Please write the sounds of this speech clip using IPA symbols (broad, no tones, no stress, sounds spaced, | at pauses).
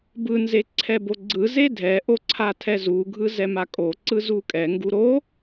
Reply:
b ɯ n z e ǀʰ ɛ b o ɡ͡ǀ ɯ z e dʱ ɛ ʔ o ǀʰ a tʰ ɛ z u ɡʱ ɯ z ɛ m a kʼ o ǀ ɯ z u kʼ ɛ ŋ ɡ u ɾ o